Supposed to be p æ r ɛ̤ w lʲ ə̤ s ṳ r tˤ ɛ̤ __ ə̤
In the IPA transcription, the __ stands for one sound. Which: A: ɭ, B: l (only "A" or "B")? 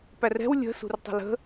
B